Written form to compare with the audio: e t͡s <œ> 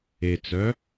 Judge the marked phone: correct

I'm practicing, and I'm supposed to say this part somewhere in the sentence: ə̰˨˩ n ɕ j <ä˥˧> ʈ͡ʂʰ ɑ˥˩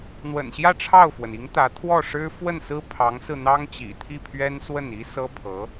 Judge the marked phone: correct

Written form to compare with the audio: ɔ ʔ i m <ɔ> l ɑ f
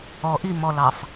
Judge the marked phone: correct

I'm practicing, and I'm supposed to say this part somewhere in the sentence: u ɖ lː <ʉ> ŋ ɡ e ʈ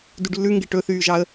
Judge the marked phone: correct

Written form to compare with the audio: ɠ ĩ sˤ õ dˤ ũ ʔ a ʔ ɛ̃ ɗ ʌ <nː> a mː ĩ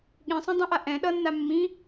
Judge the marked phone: correct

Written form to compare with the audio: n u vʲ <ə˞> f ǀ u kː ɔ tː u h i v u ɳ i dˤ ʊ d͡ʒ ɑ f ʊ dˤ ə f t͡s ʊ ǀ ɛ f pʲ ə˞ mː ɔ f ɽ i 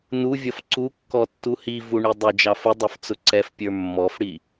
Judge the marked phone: incorrect: ʌ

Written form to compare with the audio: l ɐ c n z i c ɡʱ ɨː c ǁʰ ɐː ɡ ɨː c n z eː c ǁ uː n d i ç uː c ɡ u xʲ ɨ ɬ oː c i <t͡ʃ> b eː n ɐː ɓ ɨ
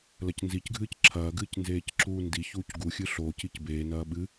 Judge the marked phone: incorrect: c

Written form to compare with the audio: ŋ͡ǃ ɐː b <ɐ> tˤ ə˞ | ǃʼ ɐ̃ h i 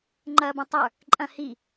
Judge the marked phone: incorrect: ɐ̃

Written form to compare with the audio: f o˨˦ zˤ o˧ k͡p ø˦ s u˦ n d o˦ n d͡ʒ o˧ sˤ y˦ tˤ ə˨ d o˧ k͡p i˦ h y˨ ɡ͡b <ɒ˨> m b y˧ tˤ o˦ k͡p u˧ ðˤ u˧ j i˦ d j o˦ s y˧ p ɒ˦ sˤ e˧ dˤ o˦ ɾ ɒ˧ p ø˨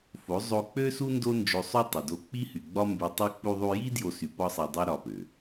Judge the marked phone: incorrect: ɒ˦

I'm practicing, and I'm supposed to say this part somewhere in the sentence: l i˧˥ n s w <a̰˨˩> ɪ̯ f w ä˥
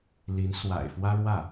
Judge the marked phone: correct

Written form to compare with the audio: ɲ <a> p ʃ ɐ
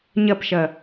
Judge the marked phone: incorrect: ɐ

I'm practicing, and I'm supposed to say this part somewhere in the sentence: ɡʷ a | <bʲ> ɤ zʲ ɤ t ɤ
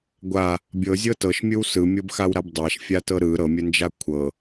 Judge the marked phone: correct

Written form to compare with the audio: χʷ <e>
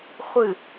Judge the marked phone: incorrect: ɨ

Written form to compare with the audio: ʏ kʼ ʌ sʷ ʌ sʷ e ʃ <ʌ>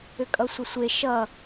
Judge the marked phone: correct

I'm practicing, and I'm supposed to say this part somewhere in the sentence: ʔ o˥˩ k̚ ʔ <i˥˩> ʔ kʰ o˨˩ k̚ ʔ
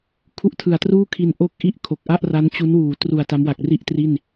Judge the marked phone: correct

